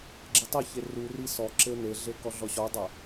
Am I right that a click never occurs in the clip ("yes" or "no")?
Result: no